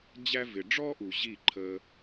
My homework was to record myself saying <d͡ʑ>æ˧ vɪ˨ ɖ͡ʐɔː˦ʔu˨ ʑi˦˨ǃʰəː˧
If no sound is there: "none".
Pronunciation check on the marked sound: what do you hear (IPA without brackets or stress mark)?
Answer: d͡ʑ